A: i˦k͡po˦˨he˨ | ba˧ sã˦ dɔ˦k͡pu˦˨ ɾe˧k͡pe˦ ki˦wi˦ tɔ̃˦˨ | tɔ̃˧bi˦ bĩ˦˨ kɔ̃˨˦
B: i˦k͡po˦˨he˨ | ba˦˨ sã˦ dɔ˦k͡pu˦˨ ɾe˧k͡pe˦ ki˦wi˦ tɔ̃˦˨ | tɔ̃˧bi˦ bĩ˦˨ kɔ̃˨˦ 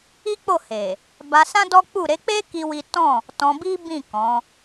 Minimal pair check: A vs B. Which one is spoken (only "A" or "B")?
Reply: A